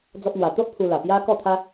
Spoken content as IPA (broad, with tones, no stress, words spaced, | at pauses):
d͡zɔ˦p̚n̪wa˧ t̪o˦ʔ pʰu˧ la˨˩pja˦kɔ˥˧t̪ʰa˦